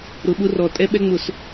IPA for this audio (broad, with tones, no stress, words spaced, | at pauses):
ɾʊ˨ɓʊ˦rɔ˨ tʼɛ˦ɓɛ˦ŋ͡mʊ˨s